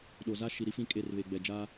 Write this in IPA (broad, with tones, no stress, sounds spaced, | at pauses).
ɗ o˨ z a˦ ʃ i˨ ɾ i˦ f ĩ˦˨ kʼ e˦˨ r β e˨ ɡ͡b ɛ˨ d͡ʒ aː˦